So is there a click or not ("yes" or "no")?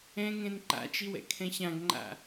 yes